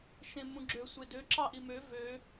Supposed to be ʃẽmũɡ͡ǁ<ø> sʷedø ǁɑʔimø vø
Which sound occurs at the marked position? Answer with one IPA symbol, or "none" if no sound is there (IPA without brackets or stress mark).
ø